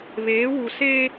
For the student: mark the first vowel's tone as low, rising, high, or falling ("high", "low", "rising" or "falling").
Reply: rising